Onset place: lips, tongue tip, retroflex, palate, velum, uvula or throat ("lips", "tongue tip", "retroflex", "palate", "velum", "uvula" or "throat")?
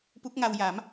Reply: lips